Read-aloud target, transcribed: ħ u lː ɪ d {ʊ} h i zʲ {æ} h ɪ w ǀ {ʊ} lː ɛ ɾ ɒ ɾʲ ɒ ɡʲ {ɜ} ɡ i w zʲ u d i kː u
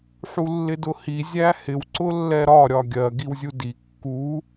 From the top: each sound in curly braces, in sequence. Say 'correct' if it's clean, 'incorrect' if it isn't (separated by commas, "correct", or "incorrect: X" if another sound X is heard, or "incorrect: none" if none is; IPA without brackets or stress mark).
correct, correct, correct, correct